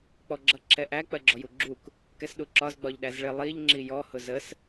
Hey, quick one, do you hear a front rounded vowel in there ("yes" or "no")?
no